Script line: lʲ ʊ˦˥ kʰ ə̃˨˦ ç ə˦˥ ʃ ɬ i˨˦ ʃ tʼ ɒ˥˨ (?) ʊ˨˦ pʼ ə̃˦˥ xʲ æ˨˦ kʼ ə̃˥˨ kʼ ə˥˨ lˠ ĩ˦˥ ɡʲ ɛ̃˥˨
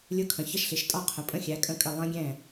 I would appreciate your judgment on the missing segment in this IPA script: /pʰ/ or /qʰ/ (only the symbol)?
qʰ